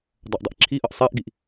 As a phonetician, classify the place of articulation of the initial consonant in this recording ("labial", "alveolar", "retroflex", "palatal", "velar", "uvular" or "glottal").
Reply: alveolar